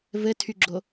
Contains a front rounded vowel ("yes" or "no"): yes